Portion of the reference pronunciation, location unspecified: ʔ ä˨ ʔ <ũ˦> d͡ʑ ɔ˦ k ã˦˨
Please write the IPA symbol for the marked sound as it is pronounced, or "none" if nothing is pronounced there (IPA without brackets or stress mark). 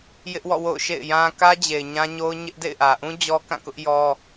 ũ˦